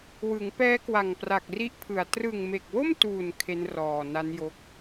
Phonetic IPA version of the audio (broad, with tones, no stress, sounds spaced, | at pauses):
w ɯ˩˦ ŋ p ɛː˦˥ k w a˨˩ ŋ p r a˨˩ k̚ r i˦˥ ʔ pʰ ɯ˨˩ a̯ t r ɯ˨˩ ŋ m e˨˩ k̚ w o˥˩ m t uː˨˩ n kʰ e˦˥ n r ɔː˨˩ n a˦˥ n j o˦˥ k̚